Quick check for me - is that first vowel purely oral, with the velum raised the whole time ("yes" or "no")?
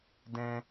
no